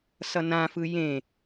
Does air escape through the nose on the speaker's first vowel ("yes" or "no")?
no